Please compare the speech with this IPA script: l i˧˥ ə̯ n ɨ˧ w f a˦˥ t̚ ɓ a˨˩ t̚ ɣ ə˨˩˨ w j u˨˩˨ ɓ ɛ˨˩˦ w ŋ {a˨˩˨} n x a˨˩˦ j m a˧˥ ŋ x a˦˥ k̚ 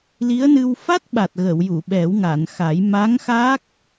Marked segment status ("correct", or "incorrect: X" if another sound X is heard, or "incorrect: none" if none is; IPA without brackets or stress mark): correct